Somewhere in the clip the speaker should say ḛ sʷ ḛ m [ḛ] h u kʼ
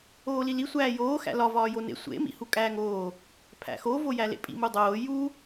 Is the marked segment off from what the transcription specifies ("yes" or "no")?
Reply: yes